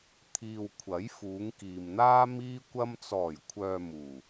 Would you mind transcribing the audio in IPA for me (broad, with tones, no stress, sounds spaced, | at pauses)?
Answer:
t̪ʰ iː˨ w kʷʰ ɐ˨˥ j f uː˨˧ ŋ k iː˨ m n̪ aː˥ m iː˧ kʷ ɐ˧ m t͡s ɔː˨˩ j kʷʰ œː˨ m uː˨˩